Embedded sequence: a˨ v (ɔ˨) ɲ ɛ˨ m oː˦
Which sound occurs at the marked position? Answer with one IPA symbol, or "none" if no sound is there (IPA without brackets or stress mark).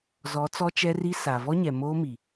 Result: ɔ˦